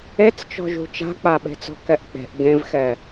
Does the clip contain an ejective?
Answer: no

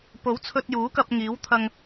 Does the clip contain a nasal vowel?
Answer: no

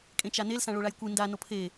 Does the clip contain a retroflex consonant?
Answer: yes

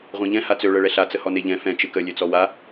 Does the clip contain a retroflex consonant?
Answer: yes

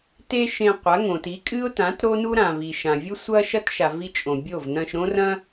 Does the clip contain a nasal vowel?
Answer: yes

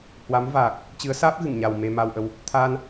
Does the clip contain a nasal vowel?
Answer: no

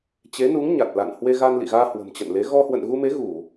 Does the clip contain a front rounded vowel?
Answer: no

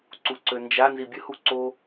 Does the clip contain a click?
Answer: yes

